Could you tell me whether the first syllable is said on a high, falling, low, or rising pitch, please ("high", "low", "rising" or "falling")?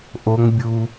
high